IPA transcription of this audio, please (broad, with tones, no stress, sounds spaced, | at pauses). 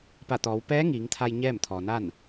p a˧˩ t̪ ɔː˩˧ w p ɛː˧˥ ŋ iː˩˧ ŋ t̪ʰ a˧ j ɲ ɛː˥˨ m t̪ʰ ɔː˩ n a˥˨ n